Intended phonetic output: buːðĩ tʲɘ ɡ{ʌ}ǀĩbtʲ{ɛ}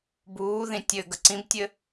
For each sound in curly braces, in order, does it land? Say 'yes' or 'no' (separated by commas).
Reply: no, no